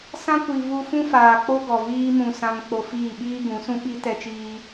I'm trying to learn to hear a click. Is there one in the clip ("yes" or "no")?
no